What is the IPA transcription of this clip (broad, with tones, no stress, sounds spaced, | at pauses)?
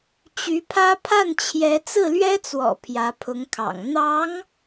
t͡ɕ y˧˥ pʰ ä˥ pʰ a˥˩ n t͡ɕʰ j ɛ˧˥ t͡s ɹ̩˥˩ l ɥ ɛ˥ t͡s w ɔ̰˨˩ pʰ j ä˧˥ pʰ ʊ˧˥ ŋ kʰ ɑ̰˨˩ ŋ n̪ ɑ˧˥ ŋ